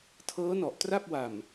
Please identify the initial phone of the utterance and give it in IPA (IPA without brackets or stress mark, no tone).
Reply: tʰ